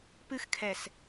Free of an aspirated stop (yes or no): no